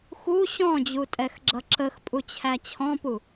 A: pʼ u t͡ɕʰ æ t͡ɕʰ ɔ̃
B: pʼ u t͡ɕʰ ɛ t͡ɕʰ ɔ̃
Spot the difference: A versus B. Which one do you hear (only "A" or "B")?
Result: A